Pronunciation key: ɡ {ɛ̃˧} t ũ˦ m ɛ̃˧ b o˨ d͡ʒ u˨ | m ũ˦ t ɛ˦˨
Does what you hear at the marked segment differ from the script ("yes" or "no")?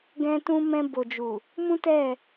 yes